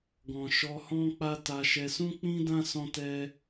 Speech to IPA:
ɡ ɔ̃˨ ʃ ɔ˧ h ɔ̃˦ k͡p a˦ t a˧ ʃ ɛ˧ s ũ˦ k͡p ĩ˦ d ã˦ s ɔ̃˦ t ɛ˦

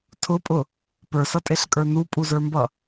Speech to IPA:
tʰ ʊ pʼ ʊ | p ə˞ s ʌ tʼ e ɬ kʼ ə˞ n u pʼ u z ə˞ m b ʌ

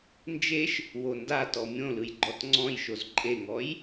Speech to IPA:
n d͡ʒ e ʃ | w o n d a t ɔ mʲ õ l ɯ j ɡ͡ǃ ɔ t ŋ͡ǀ ɔ̃ j ʃ o z ǃʼ e ŋ ɔ j

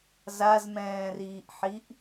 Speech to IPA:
z a z m ɛ̃ː r iː ʔ ħ i ʔ

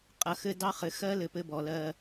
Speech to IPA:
qʼ ɐ˨ x ɘ˦ d ɑ˦ χ ɘ˨ x ɜ˦ l ɘ˨ p ɘ˦ b ɔ˨ l ɜ˦˨

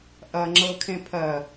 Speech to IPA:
ʔ ɐ ŋ͡ǁ ɤ kʰ ẽ pʰ ɜ

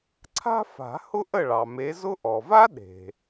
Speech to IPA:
ǀʰ a̤˥ f a̤˨˩˦ h ʊ˥ ʔ ə˥˨ ɭ ɑ˩ m e˨˦ z ʊ˥ ʔ ɔ˩ v a˥ ɗ e̤˩

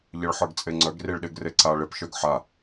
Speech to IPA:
ʎ ɘ ɭ ħ ə˞ ɡ t͡sʼ e ŋ͡ǀ œ ɡ r i ɭ ɗ e ɡ r e ǀ a ɭ ɪ p ʃ œ ɡ ħ a

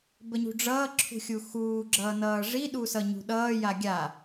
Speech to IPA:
b ə ɲ ṳ ɖ͡ʐ ʌː ǁʰ ṳ xʲ u x uː ɡ͡ǁ ʌː n ʌː ʐ i ɗ u s ʌ ɲ ṳ ɗ ʌː j a ɡʲ a

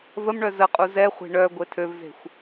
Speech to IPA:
v ə m ɳ œ z ə qʼ u z ɛ χʷ e̤ ɳ œ ɡʷ e tʰ ø v z e̤ xʷ

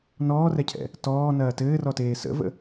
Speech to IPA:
n ɔː r ɛ cʰ ɛ̰ | t ɔː n ɐː t ɘː r ɔ t eː s ə̰ v ə̰

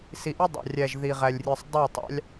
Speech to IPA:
s i˨ ʔ ɯ˦ dˤ ɑ̰˨ rʲ æ˨ ʒ ð i˨ ʁ æ˨ lʲ rʲ ɯ˨ sˤ dˤ o˦˨ tˤ ɑ̰˦ lʲ

